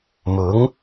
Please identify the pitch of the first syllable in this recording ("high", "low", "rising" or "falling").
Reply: rising